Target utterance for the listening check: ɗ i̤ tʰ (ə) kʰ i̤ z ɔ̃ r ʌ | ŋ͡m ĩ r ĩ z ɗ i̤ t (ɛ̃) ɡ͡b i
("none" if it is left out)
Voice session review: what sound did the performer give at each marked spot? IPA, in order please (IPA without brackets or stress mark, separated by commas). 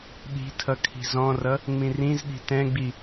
ʌ, ɛ̃